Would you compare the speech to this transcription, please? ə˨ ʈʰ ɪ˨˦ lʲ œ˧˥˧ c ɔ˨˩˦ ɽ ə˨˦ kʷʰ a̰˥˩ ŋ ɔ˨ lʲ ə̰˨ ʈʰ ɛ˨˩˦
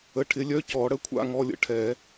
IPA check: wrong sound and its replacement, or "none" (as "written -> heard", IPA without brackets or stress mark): none